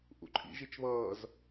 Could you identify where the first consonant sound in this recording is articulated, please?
glottal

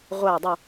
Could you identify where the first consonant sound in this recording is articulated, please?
uvular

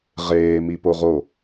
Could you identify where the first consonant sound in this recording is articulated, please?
uvular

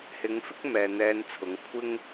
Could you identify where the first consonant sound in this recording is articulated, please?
glottal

